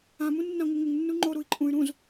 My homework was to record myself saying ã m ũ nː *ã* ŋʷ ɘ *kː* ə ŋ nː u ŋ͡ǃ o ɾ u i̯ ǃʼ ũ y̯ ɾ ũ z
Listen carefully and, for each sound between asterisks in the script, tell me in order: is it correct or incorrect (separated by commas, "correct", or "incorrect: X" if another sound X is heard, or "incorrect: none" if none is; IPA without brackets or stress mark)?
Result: correct, incorrect: ŋ